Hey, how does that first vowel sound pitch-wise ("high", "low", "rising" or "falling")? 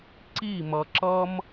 falling